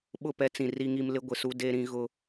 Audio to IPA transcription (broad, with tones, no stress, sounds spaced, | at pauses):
ɓ ʊ˦˨ p ɛ˦ t͡s ĩ˨ r i˦ ŋ i˦ m l ɪ˦ ɡʷ ɪ˨ s u˦ d e˦ ɾ ĩ˦ ɣ ʊ˦